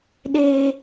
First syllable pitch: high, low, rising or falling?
low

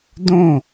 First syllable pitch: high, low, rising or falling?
falling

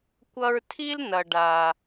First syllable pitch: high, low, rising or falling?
high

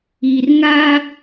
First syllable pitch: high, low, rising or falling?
low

